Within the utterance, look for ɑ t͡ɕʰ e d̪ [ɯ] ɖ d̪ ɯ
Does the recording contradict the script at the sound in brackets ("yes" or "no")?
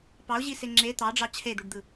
yes